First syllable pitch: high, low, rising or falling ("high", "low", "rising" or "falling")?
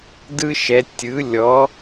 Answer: high